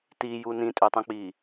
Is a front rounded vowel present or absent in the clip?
present